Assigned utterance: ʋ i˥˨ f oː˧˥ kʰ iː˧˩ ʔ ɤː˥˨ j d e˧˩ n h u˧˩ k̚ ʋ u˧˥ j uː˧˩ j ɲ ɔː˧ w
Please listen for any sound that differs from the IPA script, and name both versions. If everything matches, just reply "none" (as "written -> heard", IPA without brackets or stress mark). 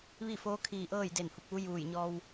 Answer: none